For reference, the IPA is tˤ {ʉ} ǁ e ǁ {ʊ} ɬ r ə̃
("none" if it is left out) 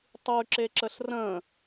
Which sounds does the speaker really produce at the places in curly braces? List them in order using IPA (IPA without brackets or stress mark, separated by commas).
ʉ, ə